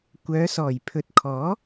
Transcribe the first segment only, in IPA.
kʷ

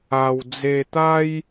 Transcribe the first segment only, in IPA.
a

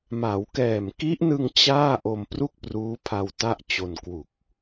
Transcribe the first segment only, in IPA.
m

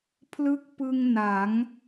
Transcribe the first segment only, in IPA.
pʰ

